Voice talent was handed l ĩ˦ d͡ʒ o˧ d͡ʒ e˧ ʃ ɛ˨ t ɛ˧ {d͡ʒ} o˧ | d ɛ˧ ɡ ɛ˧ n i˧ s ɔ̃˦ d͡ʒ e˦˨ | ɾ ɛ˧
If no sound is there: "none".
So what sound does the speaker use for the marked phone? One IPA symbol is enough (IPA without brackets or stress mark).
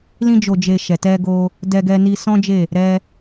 ɡ